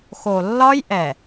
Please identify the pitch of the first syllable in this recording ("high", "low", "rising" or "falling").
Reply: low